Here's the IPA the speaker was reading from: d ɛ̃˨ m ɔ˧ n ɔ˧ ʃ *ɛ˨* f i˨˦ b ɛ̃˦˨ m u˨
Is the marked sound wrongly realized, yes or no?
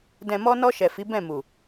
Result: no